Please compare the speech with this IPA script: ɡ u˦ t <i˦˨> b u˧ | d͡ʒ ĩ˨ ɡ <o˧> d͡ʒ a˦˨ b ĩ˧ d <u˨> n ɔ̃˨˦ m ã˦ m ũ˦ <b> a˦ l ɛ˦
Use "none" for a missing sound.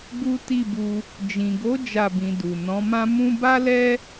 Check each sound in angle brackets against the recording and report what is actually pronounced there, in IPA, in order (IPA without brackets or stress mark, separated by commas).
i˦˨, o˨˦, u˨, b